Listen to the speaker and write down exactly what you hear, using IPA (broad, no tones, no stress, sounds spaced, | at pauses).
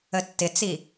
ə tː ɪ t͡s i